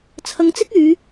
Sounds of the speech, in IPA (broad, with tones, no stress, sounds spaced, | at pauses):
t͡sʰ ɐ˧ ŋ t͡s ɪ˥ k̚ yː˨˧